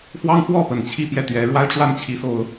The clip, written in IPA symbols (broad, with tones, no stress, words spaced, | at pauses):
fwɑ˥ŋfwɔ˥˩pə˨˩n t͡ɕʰi˥˧ pjɛ˥˩t̪ɥɛ˧˥ ɻwa˥ɪ̯ʈ͡ʂwa˥n t͡ɕʰi˧˥so˧˥ʊ̯